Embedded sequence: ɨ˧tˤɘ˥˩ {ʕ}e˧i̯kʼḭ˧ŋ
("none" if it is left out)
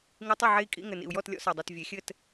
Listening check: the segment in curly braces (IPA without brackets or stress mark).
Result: ʕ